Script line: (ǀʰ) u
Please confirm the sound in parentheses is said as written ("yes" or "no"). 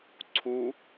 yes